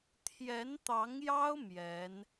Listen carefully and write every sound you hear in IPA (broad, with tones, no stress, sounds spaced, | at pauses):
t̪ʰ j ɛ˧˥ n t̪ ɑ˧˥ ŋ j ɑ˥ ʊ̯ m j ɛ˧˥ n